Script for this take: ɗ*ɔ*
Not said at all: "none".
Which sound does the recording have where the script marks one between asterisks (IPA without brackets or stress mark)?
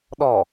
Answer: ɔ